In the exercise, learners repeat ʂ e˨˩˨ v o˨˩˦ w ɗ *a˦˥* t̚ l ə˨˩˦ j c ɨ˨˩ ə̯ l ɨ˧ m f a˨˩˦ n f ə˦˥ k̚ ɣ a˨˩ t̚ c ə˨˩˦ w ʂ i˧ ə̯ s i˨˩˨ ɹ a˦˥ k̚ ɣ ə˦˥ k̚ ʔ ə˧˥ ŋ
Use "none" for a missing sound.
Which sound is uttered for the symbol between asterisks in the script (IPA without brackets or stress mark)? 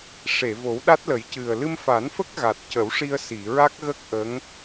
a˦˥